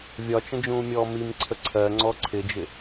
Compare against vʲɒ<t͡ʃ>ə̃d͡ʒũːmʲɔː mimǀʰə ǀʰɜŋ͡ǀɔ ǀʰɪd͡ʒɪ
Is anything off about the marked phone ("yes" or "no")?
no